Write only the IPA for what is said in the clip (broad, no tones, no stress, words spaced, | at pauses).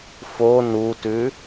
fo nutʉ